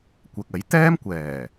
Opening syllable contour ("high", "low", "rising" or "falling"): low